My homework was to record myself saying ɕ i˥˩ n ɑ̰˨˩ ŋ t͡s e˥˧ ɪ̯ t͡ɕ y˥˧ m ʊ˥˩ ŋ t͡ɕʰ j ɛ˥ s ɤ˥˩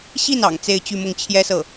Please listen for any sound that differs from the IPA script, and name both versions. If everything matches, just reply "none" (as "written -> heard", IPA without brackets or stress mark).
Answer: none